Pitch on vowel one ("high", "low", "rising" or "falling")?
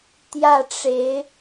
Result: falling